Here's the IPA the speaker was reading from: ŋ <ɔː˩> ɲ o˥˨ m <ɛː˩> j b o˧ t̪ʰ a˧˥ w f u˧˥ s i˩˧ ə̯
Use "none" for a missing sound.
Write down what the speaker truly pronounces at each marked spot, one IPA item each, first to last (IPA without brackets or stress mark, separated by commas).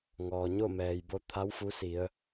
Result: ɔː˩, ɛː˩